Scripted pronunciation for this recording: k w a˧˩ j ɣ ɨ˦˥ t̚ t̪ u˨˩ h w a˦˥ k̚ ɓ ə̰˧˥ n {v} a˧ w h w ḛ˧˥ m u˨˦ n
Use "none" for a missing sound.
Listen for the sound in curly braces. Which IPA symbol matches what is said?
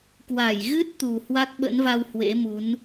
v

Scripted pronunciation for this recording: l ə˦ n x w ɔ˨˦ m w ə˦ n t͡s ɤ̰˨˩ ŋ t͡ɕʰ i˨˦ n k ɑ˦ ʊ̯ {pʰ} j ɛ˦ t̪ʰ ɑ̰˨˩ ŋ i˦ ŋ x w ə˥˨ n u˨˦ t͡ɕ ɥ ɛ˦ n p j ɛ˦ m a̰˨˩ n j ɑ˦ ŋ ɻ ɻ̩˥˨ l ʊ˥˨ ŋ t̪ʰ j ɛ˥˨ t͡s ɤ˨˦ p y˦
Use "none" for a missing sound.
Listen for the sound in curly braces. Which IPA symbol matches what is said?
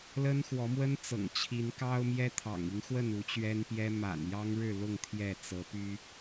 m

